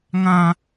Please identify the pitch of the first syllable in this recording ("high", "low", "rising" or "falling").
high